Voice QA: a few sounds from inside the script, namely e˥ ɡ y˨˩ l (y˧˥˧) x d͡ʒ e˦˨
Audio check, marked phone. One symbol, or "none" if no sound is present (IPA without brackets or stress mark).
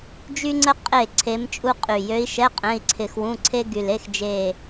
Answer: e˧˥˧